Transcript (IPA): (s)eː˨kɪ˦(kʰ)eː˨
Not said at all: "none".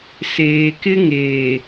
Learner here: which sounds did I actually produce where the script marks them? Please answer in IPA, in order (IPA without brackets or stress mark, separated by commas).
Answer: s, ŋ